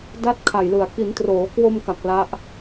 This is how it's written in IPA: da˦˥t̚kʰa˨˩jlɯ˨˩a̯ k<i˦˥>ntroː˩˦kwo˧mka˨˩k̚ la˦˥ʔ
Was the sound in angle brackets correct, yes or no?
no